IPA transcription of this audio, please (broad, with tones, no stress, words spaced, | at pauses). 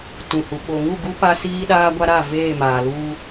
tũ˨hu˨ ɓo˨ŋu˦˨ɡu˦ pa˦ siː˦ɗaː˦ɡʷa˦ ɾa˦˨ veː˦˨maː˨luː˦